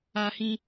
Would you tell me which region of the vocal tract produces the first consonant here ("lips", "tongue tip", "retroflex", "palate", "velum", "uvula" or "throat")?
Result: throat